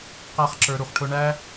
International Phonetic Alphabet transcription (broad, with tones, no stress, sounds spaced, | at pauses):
q æ˦ χ ǁ ə˞˧ ɾ u˧ χ ʈʰ ʊ˦ ɳ æ˦